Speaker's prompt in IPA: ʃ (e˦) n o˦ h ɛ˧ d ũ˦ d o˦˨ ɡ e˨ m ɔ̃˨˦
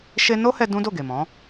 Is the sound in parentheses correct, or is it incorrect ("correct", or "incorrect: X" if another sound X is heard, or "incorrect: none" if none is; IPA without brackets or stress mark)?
correct